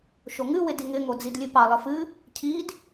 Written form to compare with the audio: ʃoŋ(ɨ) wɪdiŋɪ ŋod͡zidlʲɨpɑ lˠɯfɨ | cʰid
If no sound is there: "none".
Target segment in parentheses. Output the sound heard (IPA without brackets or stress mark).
ɨ